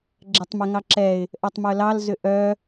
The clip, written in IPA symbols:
ɡ͡ǁɛtˤmɛŋɑǁɛɪ̯ | ʔœtˤmœlɑl zʏʔœ

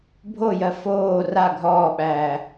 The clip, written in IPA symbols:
bʱojɜ foː ra ɡʱɔːɓæː

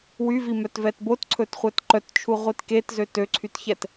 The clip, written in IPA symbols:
wyvimœtvɛt botǀʰɵtχʷɛt ǃœtt͡ʃʰuʁʷit ketzø tøǀʰytçɛt

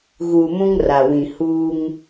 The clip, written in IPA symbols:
ɣuː˨mũ˦ŋ ra˨wĩ˨ huː˦ŋ

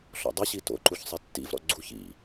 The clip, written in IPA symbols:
ɬɔ̰dˤɪɕi to̰ǃuç sˤɛtːḭvɾɔ̰ ɡ͡ǀuç ḭ

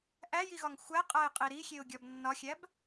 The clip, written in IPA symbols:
ʔæjiɣɒŋ xʷæqʼæɪ̯qʼi ɾixʲeʊ̯ɡʲɒb nːɒxʲæb

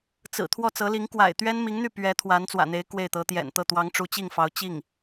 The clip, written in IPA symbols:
t͡sɹ̩˨˩ t̪ʰwɔ˥˩t͡sɤ˧˥li˧˥ŋ kwa̰˨˩ɪ̯ t̪ɥɛ˥nmi˧˥ŋn̪y˥˩ pɥɛ˧˥ t̪ʰwa˧˥nt͡swä̰˨˩n̪e˧˥ɪ̯ kwe˥˩ɪ̯t̪ɤ˧˥ t̪jɛ̰˨˩nt̪ɤ˥˩ t̪wɑ˧˥ŋʈ͡ʂu˧˥t͡ɕi˥˩ŋfɑ˧˥ʊ̯ t͡ɕi˥˩ŋ

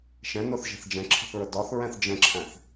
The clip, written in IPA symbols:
ʃɛ̃ nʊθʒɛ̤θ d͡ʒɛ̃ǁʰə̤θɹə dɒθ ɹɛ̃θd͡ʒə̃ǁʰæ̃θ

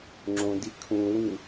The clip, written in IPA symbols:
ŋ͡ǁõdi kʰũwĩ

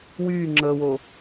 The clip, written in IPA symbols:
wyː ŋ͡ǁəːwo

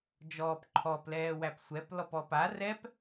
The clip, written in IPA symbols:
d͡ʒɔːpǃʰɔplɛːwæp sʷɛp lɔpɔpa rɛp

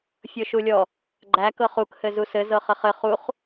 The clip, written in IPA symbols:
fʲɤʃulʲɔ | ɡ͡ǃæ kɤχuk hɘzusɘ zɤχɘχɘ χuχ

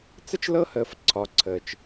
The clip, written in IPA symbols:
t͡sə˥t͡ʃ lɤ˥həː˨f ǀʰɒ˨ǀʰəː˩t͡ʃ

